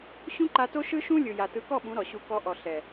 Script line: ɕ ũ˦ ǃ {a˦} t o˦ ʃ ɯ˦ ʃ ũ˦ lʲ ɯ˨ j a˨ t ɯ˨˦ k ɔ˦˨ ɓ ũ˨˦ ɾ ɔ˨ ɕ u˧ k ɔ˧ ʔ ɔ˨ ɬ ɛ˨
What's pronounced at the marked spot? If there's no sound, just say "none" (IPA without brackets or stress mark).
a˧